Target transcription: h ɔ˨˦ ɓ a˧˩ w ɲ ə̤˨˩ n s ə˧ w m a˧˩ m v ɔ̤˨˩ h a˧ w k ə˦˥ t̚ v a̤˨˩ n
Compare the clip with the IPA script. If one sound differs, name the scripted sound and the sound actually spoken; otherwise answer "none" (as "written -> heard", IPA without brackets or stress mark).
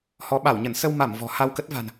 ə̤˨˩ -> ə˧˩